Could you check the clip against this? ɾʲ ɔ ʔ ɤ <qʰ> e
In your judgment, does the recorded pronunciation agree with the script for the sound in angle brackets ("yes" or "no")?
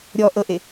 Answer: no